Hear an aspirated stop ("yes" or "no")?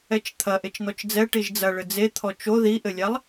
yes